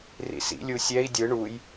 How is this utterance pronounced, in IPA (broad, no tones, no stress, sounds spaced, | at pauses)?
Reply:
r ḭ s ḭ lʲ u sʲ ɛ i̯ dʲ ɯ ɳ u j